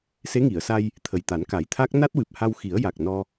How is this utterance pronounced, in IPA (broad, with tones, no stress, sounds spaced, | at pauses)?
s e˧˥ ŋ i˨˩˨ ə̯ s a˧ j | t̪ʰ ə˨˩ j t̪ a˨˩˦ n k a˨˩˦ j t̪ʰ a˦˥ k̚ n a˦˥ t̚ w ɨ˨˩ p̚ h a˧ w x i˨˩˦ ə̯ j a˨˩ k̚ n ɔ˧